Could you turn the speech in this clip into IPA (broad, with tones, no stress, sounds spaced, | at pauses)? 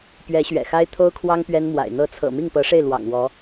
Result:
p ɥ ɛ˧˥ ɕ ɥ ɛ̰˨˩ x a˥ ɪ̯ t̪ʰ o˥ ʊ̯ kʰ w ɑ˥ ŋ p ɥ ɛ˥ n m w a̰˨˩ ɪ̯ n̪ ɤ˧˥ t͡sʰ ɤ̰˨˩ m i˥˩ ŋ p ɤ˧˥ ʂ e˥˩ ɪ̯ l w ɑ̰˨˩ ŋ w ɔ˧˥